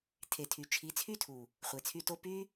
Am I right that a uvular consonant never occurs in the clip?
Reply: no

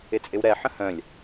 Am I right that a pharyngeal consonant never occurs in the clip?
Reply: no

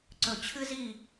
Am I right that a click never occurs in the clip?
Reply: no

